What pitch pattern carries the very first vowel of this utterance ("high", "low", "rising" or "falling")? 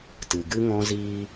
low